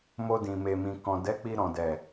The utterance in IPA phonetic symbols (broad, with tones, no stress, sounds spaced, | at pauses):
m o˧ d ĩ˨ m e˨ m ĩ˨ k ɔ̃˨ d ɛ˨˦ k͡p i˧ ɾ ɔ̃˨ d ɛ˨